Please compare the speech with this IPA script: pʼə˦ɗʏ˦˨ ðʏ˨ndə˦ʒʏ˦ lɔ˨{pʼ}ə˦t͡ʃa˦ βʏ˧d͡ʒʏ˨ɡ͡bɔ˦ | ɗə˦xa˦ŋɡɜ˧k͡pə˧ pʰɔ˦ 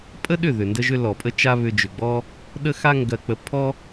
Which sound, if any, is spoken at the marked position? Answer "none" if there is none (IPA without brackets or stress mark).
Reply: pʼ